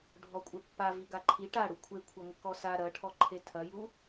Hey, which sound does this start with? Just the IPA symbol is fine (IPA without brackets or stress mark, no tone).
ɖʱ